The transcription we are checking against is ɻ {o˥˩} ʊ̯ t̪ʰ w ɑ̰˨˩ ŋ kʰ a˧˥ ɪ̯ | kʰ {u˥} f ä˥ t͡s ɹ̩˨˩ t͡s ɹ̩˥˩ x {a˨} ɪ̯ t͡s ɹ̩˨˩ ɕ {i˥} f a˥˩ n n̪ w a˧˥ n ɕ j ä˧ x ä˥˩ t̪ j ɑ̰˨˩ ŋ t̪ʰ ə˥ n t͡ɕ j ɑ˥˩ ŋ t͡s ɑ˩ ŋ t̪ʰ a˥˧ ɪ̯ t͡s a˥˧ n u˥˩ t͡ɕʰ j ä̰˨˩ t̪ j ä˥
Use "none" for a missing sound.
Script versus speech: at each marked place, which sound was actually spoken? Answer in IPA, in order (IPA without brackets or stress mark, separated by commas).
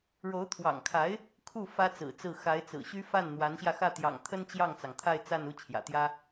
o˧˥, u˥˩, a˧˥, y˥